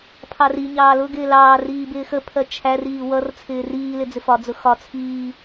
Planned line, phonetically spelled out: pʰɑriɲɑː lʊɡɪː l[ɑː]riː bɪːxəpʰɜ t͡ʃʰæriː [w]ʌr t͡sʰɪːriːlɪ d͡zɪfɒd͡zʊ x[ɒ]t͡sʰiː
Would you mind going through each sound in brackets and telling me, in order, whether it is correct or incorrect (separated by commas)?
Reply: correct, correct, correct